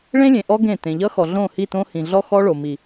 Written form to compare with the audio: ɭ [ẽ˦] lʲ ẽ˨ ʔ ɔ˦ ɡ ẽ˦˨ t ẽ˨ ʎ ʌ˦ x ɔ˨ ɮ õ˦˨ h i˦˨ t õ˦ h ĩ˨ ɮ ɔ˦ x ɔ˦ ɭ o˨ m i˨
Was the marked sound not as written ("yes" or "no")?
no